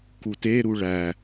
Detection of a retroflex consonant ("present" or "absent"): present